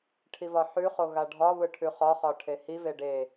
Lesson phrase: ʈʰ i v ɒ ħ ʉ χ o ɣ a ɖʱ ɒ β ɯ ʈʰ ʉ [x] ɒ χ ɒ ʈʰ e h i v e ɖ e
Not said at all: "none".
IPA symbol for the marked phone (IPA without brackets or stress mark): χ